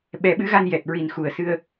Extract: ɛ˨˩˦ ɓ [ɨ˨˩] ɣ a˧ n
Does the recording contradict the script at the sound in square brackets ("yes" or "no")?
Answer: yes